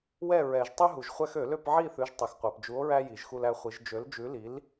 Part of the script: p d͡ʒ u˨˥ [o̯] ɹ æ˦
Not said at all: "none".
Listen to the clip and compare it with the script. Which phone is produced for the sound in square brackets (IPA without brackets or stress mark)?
o̯